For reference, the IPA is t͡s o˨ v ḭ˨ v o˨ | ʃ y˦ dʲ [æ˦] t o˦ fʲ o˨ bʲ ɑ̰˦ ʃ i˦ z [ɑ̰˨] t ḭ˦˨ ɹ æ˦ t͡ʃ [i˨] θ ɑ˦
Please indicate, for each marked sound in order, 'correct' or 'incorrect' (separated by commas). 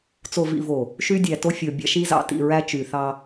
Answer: incorrect, correct, incorrect